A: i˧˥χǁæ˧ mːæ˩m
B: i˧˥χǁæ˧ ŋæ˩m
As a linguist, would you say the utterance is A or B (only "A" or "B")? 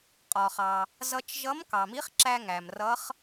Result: B